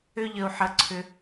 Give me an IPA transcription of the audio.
ʏ˦ ʎ ə˨ u̯ ħ ə˨ ǀʰ ʏ˨

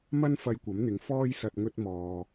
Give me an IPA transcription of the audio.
m ɐ˥ n f ɐ˧ j kʷ ɐ˨˥ m n̪ ɪ˨˧ ŋ f ɔː˥ j s ɐ˧ t̚ ŋ ɵ˥ t̚ m ɔː˧

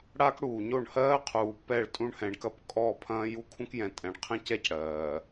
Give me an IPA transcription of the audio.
ɽ a˦ k ɽ uː˨ ɲ o˦˨ ɳ h ɜː˦ qʰ uː˨ p ɛ˦˨ ɭ tʼ ũ˦ ɳ h ɛ̃˨ ɳ k ɐ˦ p kʼ ɔ˦˨ pʰ ɐ̃ː˦ j u˦ kʰ ũ˦ k j ɛ̃˨ tʼ ɛ̃˨ ɳ qʰ ɛ̃˦ c ɛ˦˨ c ɽ ɜː˨

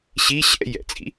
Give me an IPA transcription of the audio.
ɕ i ɕ ɛ̰ j ɛ̰ t͡sʼ ḭ

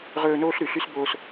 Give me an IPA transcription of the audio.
ʁ ɵː˦ n oː˥ ɬ ɾ ʉ˨ ɬ y˥ s b oː˦ s

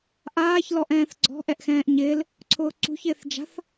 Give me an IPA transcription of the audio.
ʔ aː ç l ɔ ʔ ɛ̃ː θ ɡ͡ǀ ɔ̤ ʔ ɛ ʔ x ɛ̃ː ʔ ɲ ɪː l | ǀʰ ʊː ǀ ṳ ç ɪː θ d͡ʒ a̤ θ

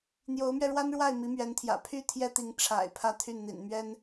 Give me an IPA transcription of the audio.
n̪ j o˧˥ ʊ̯ m ɥ ɛ˧ ɻ w a˥ n ɻ w a˥˩ ɪ̯ m i˧˥ m ɥ ɛ˧˥ n t̪ʰ j ä̰˨˩ pʰ y˥ t̪ʰ j ɛ˥ t̪ i˧˥ ŋ ʈ͡ʂʰ a̰˨˩ ɪ̯ pʰ ä˥˧ t̪ʰ y˥˩ n n̪ ḭ˨˩ n m ɥ ɛ˥ n

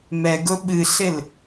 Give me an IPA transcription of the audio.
m ɛ ɡ ʊ ɓ ɨ ɬ ɪ l

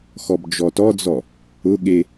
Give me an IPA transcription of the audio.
x ɔ b d͡ʒ ɔ t ɔ d͡z ɔ | ʊ ɠ e

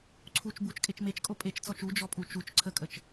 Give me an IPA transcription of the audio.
ǀʰ u t͡ʃ b u t͡ʃ kʼ e t͡ʃ m e t͡ʃ kʼ o pʼ e t͡ʃ t͡s ɔ t͡ʃ u d͡ʒ ɔ pʼ u t͡ʃ u t͡ʃ ǀʰ ə kʼ ə t͡ʃ

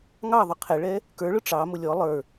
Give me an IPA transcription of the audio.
ŋ ɑ ðˤ ʊ qʰ ɛ ɭ ɛ | k ə˞ ɭ ʊ ʈ͡ʂ ɑ m ʊ lʲ ɔ lˠ ə˞

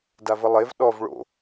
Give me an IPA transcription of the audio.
d a v ə lˠ e v ɗ ɔ v ɭ o̰

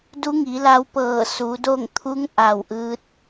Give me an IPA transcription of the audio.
d u˧˥ ŋ i˩˧ l a˧ w p ɤː˧˩ s u˩˧ d o˥˨ ŋ t̪ʰ u˧˥ ŋ ʔ a˧˩ w ʔ ɯː˧˥ t̚

